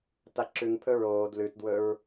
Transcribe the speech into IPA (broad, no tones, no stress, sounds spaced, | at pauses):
t a ǁ ʉ ŋ pʰ ɵ ɹ oː d l ʉ t d w ɵ ɹ